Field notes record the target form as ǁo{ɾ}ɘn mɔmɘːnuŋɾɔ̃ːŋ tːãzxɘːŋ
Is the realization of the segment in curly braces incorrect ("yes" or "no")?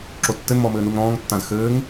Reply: yes